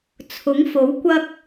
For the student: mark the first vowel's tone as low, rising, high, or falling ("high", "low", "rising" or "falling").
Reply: rising